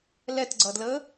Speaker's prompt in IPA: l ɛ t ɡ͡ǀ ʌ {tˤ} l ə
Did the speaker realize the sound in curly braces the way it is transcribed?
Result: no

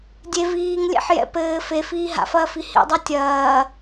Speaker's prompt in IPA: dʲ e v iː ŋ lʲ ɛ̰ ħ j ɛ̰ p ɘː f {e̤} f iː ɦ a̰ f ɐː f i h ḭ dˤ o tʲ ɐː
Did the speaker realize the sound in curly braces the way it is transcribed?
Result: no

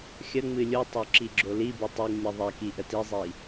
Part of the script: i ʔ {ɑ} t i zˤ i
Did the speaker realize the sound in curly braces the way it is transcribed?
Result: no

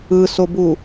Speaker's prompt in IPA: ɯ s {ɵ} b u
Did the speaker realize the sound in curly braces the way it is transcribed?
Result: no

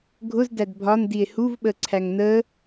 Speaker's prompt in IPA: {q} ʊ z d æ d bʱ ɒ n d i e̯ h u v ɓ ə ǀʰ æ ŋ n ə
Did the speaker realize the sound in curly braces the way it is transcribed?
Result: no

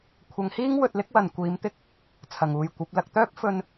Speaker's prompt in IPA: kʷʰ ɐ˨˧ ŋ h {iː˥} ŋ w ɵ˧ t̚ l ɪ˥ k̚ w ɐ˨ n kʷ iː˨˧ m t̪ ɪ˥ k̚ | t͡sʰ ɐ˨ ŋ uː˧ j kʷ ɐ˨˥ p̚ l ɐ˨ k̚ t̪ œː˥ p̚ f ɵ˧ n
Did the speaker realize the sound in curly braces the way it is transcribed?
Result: yes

